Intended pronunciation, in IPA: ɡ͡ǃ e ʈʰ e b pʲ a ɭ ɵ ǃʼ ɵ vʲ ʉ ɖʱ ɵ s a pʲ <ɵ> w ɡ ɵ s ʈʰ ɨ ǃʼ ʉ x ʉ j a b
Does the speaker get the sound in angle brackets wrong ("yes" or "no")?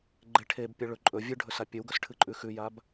no